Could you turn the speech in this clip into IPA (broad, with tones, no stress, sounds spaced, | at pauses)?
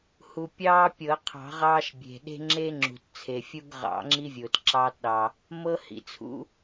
h u˩ pʲ ɑː˦ pʲ ɤ˨˩˦ qʰ ɑ̤˨˩˦ ʁ ɑː˦ ʃ bʲ e̤˩ ɗ e̤˦ ŋ͡ǁ e˦ ŋ͡ǁ ṳ˩ t t͡sʰ e˩ fʲ u˦ ɡ ʁ ɑ̰˨˩˦ ŋ͡ǁ i˦ vʲ ʊː˩ t ǁ ɑː˦ t ɗ ɑ˩ | m ɤ˦ h ḭ˩ t͡sʰ ṵ˦